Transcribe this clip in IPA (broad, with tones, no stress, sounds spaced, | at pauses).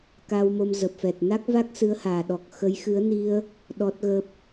k aː˧ w m o˧ m z ə˨˩ p̚ f ɛ˨˩ t̚ n a˦˥ k̚ v a˦˥ k̚ s ɨ˨˦ ə̯ h aː˨˩ ɗ ɔ˨˩ k̚ x ə˨˦ j x ɨ˨˦ ə̯ n i˧ ə̯ | ɗ ɔ˦˥ t̚ ɣ ə˦˥ p̚